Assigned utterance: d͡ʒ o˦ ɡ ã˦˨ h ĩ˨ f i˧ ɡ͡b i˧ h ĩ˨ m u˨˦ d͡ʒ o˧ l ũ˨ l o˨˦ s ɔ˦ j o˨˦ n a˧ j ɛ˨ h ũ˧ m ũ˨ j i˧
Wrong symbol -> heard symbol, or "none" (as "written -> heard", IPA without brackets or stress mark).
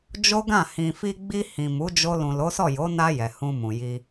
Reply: ɔ˦ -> ɔ˦˨